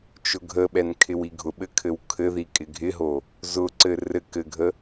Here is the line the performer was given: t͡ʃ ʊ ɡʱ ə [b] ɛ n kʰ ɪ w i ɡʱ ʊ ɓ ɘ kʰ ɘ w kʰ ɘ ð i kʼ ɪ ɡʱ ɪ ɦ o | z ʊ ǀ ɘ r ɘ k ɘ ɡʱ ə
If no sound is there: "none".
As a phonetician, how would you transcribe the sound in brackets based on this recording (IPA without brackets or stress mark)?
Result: ɓ